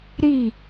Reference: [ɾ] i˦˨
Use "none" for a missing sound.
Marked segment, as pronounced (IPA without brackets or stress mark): ɾ